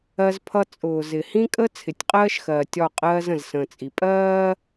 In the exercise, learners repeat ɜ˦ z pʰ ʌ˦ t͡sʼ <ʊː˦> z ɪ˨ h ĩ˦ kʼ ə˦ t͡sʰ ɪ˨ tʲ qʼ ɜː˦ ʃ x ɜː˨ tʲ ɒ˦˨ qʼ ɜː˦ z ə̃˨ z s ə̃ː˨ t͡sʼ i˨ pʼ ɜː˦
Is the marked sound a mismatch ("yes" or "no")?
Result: yes